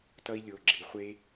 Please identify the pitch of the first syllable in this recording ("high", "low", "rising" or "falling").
high